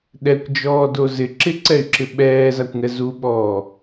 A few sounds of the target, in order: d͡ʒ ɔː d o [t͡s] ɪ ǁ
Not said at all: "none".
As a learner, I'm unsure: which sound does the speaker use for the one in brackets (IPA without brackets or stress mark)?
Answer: z